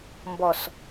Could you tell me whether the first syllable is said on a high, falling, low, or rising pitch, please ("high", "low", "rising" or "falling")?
low